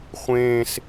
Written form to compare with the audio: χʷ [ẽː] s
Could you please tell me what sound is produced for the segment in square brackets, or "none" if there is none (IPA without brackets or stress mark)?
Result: ẽː